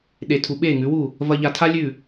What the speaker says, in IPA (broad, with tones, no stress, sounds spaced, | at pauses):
ɗ e˧ tʰ u˧ ɓ e˦˨ ŋ ʉ˨˦ w u˦˨ | v ɐ˧ ʎ a˧ tʰ a˦ lʲ ʉ˦˨